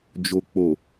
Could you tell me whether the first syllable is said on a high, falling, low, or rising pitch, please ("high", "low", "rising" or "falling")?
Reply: low